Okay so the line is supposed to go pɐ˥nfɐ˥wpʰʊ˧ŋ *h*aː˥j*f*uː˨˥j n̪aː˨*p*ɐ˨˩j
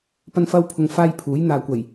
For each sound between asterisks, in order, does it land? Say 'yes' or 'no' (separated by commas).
no, no, no